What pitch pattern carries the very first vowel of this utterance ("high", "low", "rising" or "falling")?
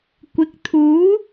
rising